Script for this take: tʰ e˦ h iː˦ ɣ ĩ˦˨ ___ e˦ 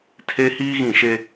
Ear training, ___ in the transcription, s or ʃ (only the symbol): ʃ